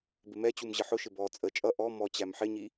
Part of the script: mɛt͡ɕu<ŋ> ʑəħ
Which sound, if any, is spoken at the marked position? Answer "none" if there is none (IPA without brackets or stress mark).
m